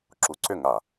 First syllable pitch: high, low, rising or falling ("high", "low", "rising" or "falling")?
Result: rising